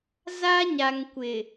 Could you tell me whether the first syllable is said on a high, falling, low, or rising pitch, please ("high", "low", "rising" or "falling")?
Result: high